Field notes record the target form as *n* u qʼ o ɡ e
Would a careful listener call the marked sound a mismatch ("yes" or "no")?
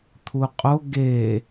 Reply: yes